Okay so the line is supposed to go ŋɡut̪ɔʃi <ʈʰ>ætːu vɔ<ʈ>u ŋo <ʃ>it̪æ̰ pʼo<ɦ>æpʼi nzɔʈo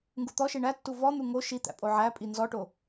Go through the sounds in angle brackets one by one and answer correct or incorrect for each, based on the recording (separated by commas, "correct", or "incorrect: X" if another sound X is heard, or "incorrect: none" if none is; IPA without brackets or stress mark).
incorrect: ɳ, incorrect: n̪, correct, incorrect: ʕ